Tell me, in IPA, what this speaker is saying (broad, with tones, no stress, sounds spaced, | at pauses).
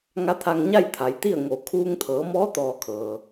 ŋ a˧˥ t̪ʰ a˧ ŋ ɲ a˥˨ j t̪ʰ a˩˧ j t̪ i˥˨ ə̯ ŋ o˧˩ kʰ uː˧ ŋ t̪ʰ ɤː˩˧ m ɔː˧˥ t̪ ɔː˧ kʰ ɤː˩